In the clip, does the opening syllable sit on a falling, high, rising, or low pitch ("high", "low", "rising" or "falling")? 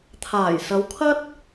low